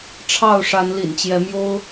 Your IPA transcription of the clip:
ʈ͡ʂʰ ɑ˥˨ ʊ̯ ʂ a˨˦ n l ḭ˨˩ n t͡ɕ j ɛ˨˦ m j o˦ ʊ̯

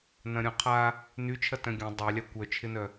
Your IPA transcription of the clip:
n ɐ̃ ɾʲ ɔ̃ qʰ a | n y t͡ʃʰ ɐ t œ̃ ɡʲ ɐ̃ dˤ a lʲ a kʷ œ t͡ʃʰ ɪ n œ

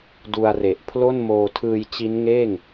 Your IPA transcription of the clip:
d u˧ a̯ r e˨˩ ʔ pʰ l o˥˩ n m oː˧ tʰ ɯː˧ j t͡ɕ i˦˥ n ŋ eː˥˩ ŋ

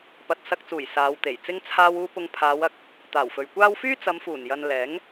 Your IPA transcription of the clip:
p ɐ˨ t̚ s ɐ˧ k̚ t͡s uː˨˩ j s aː˨˧ w t̪ e˨˩ j t͡s ɪ˧ ŋ t͡sʰ aː˧ w uː˧ p ʊ˧ ŋ pʰ aː˨˧ w ɐ˧ k̚ | t̪ aː˨˩ w f ɵ˨ ɥ kʷ aː˥ w f yː˥ t͡s ɐ˨˧ m f uː˨˩ n j ɐ˨ n l ɛː˨˥ ŋ

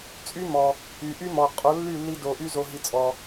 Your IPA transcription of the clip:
t͡sʼ y˦ m ɔ˨ | y˨ ʔ y˦ m ɔ˨ qʼ o˨˦ lː y˦˨ lː i˧ d o˨ ʔ y˧ z o˨ ɦ i˨ t͡sʼ ɔ˨

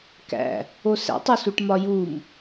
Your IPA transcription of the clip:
k æ̰ | o s æ̰ tˤ u s u ʈ m ɒ j u m

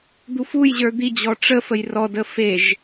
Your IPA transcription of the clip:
d̪ u f u j ʑ ə˞ d̪ i d͡ʑ ɔ ʈ͡ʂ ə f ə j r ɔ d ə f e ʒ

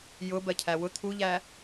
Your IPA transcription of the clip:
j ʊ b ɜ cʰ æ w ʊ t̪ʰ u ʎ æ

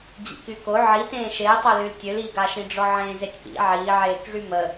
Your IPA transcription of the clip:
d͡ʑ ḭ k y k o ʕ i t ẽː ʃ e tˤ œ l y l tʲ ø l iː ɡ a ʃ ĩ ɖ͡ʐ ɔ ʕ ẽː z e tʲ p ḭ ʕ iː ʕ eː k ʐ y m ə

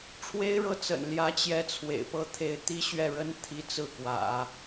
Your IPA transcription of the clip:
ʈ͡ʂʰ w e˥ ɪ̯ ɻ ɤ˥˩ t͡s ə̰˨˩ n l j ä˧˥ t͡ɕ j ɛ˥ t͡sʰ w ḛ˨˩ ɪ̯ p ɤ˥˧ t̪ʰ e˥˩ ɪ̯ t̪ i˥ ɕ ɥ ɛ˥˩ ɻ ə˥ n t̪ʰ i˥ t͡s ɹ̩˥˩ k w ä̰˨˩˦

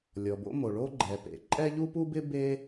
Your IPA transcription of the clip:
lʲ ɔ˩ b o̰˥ m o˩ ɭ o˥ ɡ͡ǃ ɛ˩ p ḛ˩ ǃʼ ɛ˥ ʎ u˥ p u˥ b ɪ˥ b e˥

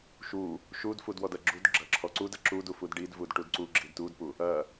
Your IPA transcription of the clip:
ʃ u | ʃ u d f u d w ɔ d ɐ ɡ͡ǁ u d ɡ͡ǁ ɐ ǁʰ ɔ ǀ u d ɐ ǁ u d u f u d ɖ i d v u d ʈ u d ǀ u ɡ͡ǁ i d t u d p u | ɐ

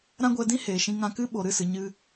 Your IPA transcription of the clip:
ɾ ã˦ ɡʷ ɛ˧ d ĩ˦ h eː˨ ʃ ĩ˧ ŋ ã˧ k ɨ˦ ɓ o˨ ɾ ɨ˦˨ s ɨ˨ ɲ ɨ˧

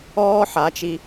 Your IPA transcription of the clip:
ɔː˦ ħ a˨˦ t͡ʃ i˧

